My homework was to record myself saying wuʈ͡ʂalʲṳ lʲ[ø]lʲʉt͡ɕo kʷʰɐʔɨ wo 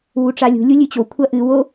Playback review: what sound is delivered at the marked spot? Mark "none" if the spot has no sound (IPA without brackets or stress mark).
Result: u